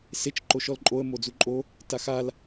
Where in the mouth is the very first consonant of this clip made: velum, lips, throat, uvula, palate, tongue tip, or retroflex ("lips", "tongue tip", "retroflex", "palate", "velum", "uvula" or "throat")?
tongue tip